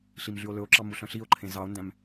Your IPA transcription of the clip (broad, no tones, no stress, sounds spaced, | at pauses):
ɬ i m ɮ y o̯ l ɵ o̯ ǁ ɑ m u ɬ œ̃ ɬ i o̯ ǃʰ ẽ z ɑ o̯ n d æ̃ m